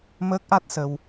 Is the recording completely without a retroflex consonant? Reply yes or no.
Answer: yes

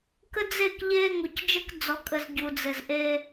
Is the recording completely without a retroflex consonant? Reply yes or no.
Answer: yes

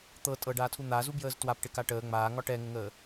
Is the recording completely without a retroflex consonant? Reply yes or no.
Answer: no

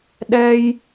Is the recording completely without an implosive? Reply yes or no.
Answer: no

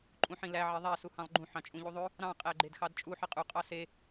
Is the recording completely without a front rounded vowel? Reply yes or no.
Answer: yes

